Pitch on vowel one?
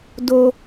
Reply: low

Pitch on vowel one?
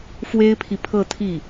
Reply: high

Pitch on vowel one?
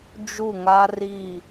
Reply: falling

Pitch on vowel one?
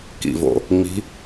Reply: low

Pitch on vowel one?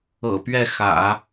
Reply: low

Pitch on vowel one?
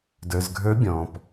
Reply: low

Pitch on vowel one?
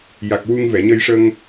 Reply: low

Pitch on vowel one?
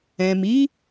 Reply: low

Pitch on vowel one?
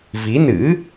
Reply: rising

